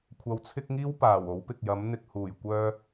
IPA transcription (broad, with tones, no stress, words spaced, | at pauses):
kʷʰɐ˧wt͡sʰɪ˥k̚ŋiː˥w paː˨˩wo˨˥w pɪ˨k̚jɐ˨˥mn̪ɪ˧k̚ huː˨˩j kʷœː˥